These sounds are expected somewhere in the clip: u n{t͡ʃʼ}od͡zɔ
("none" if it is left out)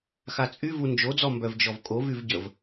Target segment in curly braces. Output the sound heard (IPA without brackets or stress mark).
d͡ʒ